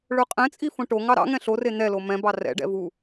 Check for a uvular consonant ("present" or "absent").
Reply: present